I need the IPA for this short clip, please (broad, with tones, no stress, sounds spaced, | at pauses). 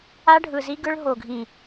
a˦ ɖʱ ɯ˨ z i˦ ɡ ɯ˦ ɭ ɦ o˨ ɡʱ ĩ˨